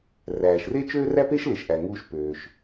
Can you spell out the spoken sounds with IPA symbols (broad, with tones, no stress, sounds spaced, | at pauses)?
r æː˩ ʃ r e˥ t͡ʃ øː˥ r æ˥ p e˥ ʃ l e˩ ʃ ʔ æ˩ ŋ uː˧ ʃ p øː˩ ʃ